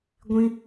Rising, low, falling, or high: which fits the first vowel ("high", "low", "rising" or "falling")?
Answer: high